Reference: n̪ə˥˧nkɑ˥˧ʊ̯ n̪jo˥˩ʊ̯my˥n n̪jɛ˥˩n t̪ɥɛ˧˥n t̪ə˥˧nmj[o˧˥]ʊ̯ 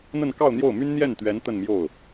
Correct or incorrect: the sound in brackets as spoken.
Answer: incorrect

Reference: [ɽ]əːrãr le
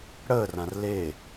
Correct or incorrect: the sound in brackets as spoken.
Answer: correct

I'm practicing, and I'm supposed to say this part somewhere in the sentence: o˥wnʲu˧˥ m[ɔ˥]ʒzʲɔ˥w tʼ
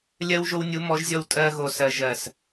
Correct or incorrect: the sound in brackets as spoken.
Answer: incorrect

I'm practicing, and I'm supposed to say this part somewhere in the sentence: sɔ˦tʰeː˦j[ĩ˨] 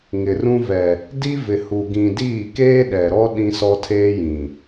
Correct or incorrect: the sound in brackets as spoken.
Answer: correct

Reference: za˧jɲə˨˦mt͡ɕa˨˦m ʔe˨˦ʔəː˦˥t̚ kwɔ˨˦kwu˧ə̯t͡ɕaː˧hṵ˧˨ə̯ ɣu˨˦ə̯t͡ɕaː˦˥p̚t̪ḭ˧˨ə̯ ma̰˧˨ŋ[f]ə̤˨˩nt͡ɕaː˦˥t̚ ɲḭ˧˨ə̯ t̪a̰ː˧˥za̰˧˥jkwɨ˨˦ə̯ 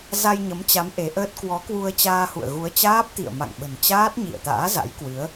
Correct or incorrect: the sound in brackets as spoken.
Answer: incorrect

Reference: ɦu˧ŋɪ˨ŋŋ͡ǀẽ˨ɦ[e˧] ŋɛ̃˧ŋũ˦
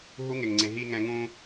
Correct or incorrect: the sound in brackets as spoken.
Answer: incorrect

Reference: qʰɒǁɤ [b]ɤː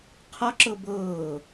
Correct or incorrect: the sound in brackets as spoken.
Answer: correct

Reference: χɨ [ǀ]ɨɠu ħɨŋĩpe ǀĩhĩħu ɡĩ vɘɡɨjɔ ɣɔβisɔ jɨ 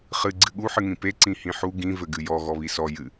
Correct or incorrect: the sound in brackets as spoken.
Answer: incorrect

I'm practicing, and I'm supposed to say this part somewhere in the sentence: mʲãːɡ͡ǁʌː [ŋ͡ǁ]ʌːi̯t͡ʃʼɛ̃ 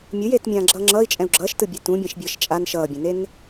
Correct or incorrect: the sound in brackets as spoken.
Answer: correct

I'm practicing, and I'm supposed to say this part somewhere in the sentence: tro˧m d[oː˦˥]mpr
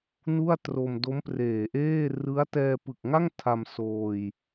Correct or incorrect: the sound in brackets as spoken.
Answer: incorrect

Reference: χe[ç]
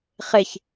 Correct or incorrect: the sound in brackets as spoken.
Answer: correct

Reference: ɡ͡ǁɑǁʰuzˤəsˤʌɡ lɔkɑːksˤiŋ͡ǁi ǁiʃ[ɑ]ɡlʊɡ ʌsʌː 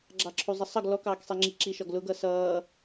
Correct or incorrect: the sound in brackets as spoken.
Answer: incorrect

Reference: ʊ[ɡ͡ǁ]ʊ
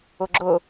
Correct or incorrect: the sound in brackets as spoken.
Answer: correct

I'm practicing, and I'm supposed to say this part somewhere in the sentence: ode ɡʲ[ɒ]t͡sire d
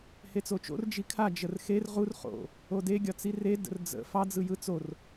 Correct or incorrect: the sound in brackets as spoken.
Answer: correct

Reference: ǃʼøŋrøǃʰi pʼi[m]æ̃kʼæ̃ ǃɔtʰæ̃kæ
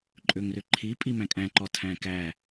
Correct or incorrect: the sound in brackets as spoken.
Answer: correct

